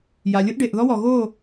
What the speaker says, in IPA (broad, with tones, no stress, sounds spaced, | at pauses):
j a˨ lʲ ʊ˦ ʔ ɖ e˨ ʔ ð ɔ˦ w ɔ˨ ɣ o˦˨